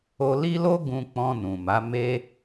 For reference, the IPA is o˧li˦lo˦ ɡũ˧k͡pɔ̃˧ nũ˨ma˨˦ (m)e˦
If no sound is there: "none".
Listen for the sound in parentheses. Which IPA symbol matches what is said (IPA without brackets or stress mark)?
m